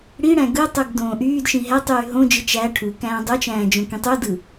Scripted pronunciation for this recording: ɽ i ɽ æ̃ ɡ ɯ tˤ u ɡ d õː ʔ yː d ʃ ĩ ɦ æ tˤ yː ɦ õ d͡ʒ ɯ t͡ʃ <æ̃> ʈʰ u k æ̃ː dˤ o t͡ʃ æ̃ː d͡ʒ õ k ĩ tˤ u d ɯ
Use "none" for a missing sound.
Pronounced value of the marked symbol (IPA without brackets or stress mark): æ